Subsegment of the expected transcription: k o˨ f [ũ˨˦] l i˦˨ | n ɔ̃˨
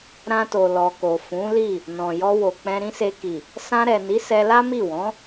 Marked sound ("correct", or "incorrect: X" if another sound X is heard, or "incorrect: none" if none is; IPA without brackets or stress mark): correct